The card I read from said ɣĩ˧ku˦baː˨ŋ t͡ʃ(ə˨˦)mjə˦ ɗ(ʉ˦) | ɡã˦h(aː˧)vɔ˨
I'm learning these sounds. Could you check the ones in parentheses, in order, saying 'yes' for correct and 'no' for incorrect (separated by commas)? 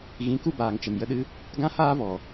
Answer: no, no, no